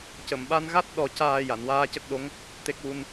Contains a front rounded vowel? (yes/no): no